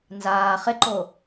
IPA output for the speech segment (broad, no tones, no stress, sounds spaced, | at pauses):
n z aː χ ɪ ǃ o